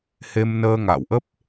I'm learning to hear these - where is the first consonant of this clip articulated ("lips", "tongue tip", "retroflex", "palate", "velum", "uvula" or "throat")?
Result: throat